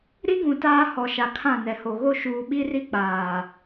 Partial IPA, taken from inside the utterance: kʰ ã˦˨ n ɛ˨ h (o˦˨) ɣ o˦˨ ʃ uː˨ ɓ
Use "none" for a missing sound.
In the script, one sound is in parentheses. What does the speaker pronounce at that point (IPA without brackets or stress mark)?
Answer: o˨